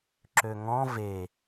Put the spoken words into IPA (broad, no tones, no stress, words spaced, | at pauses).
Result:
ǁøŋɔ̃ ve